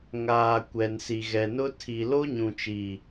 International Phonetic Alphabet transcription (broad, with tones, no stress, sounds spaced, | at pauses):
ŋ aː˨ kʷ ɛ˨ n s i˨ ɣ ɛ˨ n ʊ˦ tʰ i˨ l o˦ ɲ ũ˨ t͡ʃ i˨